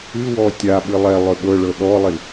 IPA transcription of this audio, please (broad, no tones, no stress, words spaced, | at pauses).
ɨwɔ tʲaɓɨ lˠɛ lˠøɓɤɭɤ ɗɔlˠi